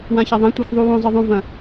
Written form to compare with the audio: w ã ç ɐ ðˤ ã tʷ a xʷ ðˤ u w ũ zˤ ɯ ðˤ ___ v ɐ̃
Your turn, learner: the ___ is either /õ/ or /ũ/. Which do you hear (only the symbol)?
ũ